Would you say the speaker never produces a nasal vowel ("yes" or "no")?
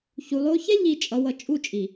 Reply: yes